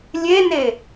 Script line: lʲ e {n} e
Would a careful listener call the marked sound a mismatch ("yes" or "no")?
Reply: no